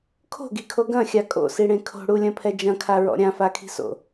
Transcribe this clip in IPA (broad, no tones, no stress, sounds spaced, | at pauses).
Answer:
kʰ o̤ ɡ i kʰ o ɡ ɐ̃ xʲ a kʼ o̰ s i ɽ ẽ kʰ o̤ ɽ u lʲ ɐ̃ pʰ ɛ d͡ʒ ɐ̃ kʰ a ɹ ɔ̰ ɾʲ ã f a kʰ i̤ s o̰